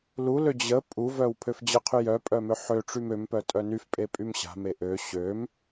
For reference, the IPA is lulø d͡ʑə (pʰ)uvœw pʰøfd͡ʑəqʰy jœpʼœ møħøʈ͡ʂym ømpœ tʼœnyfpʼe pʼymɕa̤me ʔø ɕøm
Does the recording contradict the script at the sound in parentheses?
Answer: yes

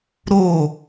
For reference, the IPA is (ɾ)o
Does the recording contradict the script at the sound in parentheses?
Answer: no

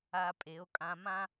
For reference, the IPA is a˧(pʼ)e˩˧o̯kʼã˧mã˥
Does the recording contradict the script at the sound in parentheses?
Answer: no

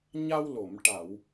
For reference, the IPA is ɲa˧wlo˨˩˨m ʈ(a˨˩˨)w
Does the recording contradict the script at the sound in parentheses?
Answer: no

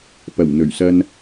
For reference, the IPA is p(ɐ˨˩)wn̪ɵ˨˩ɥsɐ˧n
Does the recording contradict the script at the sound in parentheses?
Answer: no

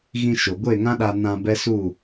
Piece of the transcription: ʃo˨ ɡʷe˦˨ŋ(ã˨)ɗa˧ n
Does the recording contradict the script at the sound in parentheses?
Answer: yes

